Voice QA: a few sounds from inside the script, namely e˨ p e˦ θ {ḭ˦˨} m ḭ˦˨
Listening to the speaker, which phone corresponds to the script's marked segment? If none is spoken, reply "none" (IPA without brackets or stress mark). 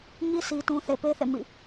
ḛ˦˨